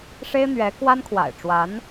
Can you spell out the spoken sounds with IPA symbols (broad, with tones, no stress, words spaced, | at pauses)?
ʂe˥ɪ̯n̪ɥɛ˧˥ kwa˥nkʰwa̰˨˩ɪ̯ʈ͡ʂwa˧˥n